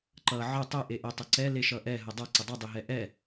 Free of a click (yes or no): no